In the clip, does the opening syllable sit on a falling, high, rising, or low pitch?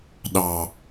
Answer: low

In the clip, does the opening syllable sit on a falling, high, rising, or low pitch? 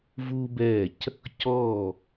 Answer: high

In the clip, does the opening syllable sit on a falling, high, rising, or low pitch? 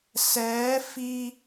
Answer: rising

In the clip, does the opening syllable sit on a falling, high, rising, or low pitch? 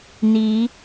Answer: rising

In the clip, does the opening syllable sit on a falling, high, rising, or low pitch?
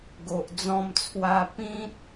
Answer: low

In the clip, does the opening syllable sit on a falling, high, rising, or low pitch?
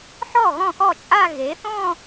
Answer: falling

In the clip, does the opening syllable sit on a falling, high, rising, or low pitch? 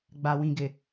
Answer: low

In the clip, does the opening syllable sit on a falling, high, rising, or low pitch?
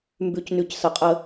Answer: low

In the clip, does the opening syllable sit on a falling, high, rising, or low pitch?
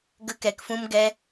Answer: high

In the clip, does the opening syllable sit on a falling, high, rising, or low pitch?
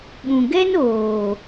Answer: low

